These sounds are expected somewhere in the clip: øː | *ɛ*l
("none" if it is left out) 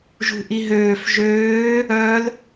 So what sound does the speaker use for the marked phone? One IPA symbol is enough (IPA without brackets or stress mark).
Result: œ